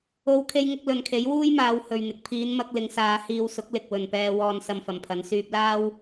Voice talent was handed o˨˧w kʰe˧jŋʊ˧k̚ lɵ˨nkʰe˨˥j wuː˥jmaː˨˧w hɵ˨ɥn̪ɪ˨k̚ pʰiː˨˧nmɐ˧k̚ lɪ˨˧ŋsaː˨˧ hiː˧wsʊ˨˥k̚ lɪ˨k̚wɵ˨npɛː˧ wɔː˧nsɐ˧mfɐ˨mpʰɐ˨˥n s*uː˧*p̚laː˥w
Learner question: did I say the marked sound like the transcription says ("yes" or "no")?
no